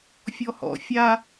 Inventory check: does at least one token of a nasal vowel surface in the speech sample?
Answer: no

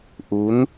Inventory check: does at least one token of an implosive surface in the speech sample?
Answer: no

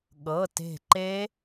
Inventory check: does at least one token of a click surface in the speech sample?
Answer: yes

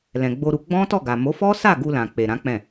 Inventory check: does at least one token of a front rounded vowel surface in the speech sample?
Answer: no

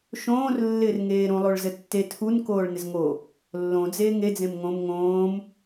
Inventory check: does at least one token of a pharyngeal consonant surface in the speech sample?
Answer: no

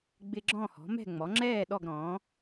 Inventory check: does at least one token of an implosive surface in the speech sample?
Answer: yes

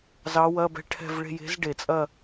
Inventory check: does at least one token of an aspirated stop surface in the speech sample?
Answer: yes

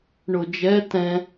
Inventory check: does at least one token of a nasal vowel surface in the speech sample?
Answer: yes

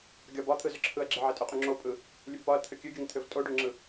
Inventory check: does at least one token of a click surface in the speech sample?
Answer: yes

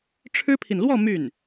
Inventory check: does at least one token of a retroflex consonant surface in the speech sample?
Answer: yes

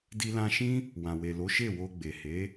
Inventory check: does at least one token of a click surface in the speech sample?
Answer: no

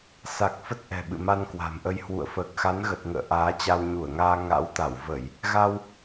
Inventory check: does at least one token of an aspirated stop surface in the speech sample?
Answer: no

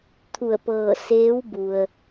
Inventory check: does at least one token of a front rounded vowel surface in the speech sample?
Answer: no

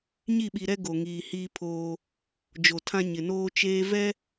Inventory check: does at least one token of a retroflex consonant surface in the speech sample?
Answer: no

